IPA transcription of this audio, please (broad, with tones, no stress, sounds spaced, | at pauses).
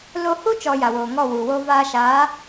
l o˦ h u˦ t͡ʃ ɔ˧ j a˨ w oː˨ ŋ ɔ˦˨ w u˨ w o˦ v aː˧ ʃ aː˨˦